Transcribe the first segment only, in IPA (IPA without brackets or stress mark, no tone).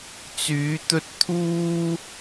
t͡s